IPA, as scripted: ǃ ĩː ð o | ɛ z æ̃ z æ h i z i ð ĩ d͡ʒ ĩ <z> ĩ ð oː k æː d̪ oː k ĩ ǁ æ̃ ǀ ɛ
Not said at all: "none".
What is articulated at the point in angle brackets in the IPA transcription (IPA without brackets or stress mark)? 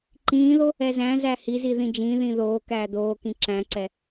ð